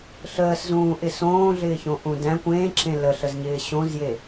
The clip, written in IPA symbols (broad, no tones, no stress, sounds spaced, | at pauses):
ɬ əː s z ũː ʔ ɪ s õː ɮ ɪː ç õ ʔ ũ d æ̃ kʷ ẽː ǁ ẽ l ə ɬ ə z ɲ ɪː ɕ õ z j e